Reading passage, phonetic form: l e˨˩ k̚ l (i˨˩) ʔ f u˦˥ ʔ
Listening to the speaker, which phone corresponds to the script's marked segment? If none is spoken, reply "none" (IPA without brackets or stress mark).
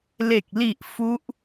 i˨˩